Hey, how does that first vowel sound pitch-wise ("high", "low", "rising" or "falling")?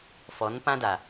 rising